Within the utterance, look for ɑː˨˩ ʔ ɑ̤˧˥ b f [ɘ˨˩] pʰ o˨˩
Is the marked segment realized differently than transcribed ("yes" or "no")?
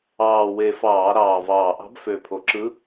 yes